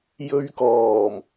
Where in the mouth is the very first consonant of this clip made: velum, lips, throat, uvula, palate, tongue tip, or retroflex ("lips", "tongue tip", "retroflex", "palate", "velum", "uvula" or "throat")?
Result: palate